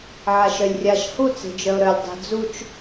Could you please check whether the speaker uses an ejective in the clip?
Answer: no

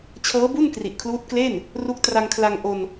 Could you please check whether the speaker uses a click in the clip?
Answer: no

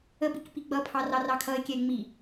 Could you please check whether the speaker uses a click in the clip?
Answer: no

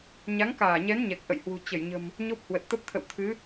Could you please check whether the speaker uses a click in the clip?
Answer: no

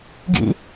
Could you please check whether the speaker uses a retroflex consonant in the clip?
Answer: no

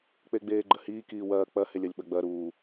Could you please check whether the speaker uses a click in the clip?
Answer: yes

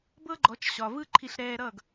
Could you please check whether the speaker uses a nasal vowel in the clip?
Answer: no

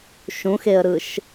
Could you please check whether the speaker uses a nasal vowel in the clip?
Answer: yes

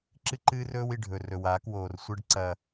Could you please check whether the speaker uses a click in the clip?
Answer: yes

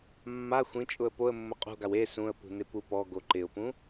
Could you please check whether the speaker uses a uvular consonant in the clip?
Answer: yes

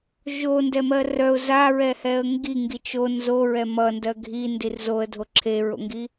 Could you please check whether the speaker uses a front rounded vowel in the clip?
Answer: yes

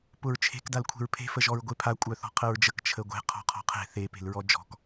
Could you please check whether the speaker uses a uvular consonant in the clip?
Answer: yes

